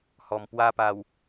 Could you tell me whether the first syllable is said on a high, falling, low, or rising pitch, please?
low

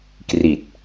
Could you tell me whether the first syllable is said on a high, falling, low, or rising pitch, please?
low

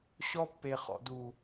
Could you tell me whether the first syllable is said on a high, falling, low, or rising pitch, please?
high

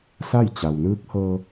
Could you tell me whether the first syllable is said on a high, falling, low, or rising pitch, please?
falling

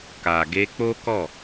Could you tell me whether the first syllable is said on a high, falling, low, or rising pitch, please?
low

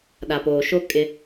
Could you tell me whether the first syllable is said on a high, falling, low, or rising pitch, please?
low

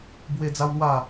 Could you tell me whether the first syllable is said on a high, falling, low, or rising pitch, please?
high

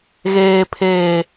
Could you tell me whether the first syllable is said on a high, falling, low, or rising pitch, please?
low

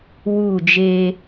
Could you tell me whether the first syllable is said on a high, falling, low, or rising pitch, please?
falling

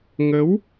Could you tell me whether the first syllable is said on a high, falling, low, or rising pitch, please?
rising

